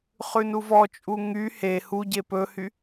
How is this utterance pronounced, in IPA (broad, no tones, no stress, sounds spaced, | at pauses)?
χ ʉ n u v ɔ t͡ʃʼ u ŋ y h e h u ɟ e p ɵ h y